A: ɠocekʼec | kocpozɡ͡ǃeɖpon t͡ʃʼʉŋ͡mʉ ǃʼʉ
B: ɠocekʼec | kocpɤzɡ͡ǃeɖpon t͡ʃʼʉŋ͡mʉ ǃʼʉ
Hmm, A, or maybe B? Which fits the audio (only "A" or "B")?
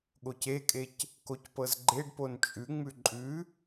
B